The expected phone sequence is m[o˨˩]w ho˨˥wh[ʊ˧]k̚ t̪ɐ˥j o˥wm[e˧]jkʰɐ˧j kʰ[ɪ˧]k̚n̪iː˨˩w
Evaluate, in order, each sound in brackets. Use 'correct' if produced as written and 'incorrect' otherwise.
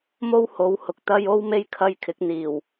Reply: incorrect: o˥, incorrect: ʊ˨, incorrect: e˥, incorrect: ɪ˨˥

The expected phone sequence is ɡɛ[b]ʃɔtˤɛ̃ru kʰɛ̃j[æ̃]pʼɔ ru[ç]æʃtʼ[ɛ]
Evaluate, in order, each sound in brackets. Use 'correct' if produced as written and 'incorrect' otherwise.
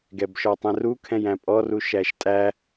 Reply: correct, correct, incorrect: ʃ, incorrect: æ

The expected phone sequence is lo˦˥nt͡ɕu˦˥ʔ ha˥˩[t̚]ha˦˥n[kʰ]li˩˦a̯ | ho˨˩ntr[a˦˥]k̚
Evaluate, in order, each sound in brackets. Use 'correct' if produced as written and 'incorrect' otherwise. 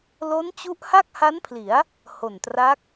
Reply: incorrect: k̚, incorrect: pʰ, correct

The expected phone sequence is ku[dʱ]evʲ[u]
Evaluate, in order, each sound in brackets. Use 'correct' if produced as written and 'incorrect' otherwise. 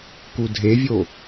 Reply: correct, incorrect: o

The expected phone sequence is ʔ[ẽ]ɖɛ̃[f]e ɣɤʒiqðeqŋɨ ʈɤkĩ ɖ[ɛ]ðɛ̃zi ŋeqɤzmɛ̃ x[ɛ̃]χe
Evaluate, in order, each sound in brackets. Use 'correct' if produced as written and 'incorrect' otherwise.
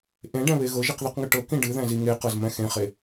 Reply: correct, incorrect: β, incorrect: ɨ, incorrect: ẽ

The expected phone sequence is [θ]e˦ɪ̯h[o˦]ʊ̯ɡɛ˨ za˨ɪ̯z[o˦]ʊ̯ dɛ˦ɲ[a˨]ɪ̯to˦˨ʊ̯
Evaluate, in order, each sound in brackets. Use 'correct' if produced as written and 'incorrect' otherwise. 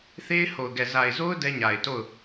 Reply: correct, incorrect: o˨, correct, correct

